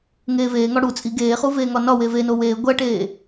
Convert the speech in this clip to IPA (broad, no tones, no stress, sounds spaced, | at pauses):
ŋ eː v eː ŋ ɒ ɽ u t͡sʼ i ɡ eː χ u v eː ŋ ɒ n ɒ w e v e n o w eː ɡʷ æ ʈ eː